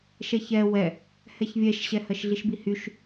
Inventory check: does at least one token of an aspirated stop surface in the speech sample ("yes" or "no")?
no